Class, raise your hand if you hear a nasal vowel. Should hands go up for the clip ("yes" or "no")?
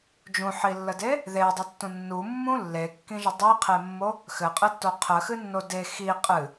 yes